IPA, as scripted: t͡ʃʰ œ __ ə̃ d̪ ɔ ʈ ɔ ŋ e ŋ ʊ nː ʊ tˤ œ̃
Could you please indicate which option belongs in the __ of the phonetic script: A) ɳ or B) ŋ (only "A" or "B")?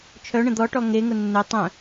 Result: A